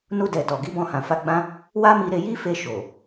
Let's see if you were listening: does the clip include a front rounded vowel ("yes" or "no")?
no